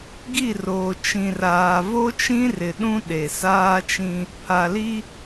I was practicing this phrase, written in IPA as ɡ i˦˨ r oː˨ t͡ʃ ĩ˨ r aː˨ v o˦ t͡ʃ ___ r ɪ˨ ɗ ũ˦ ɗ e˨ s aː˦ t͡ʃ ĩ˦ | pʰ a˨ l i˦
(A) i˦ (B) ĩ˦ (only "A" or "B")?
B